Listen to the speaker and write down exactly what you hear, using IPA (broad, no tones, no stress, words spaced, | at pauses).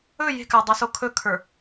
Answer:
ɵ je̤kadˤaso kʰɵkʰə˞